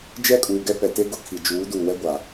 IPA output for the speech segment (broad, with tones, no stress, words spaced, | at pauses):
d͡ʒɛ˦kʼuː˨ɡɛ˦ pɛ˨te˦ ɡʊ˦˨kʰi˨ d͡ʒuː˨˦duː˨wɛ˦ɡʷa˨